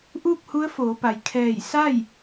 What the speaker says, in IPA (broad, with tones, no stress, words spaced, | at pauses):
ʔuː˥˨k̚hu˧˥ə̯foː˩˧pa˩j kʰɛː˧˩jsa˥˨j